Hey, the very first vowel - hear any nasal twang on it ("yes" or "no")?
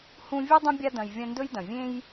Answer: yes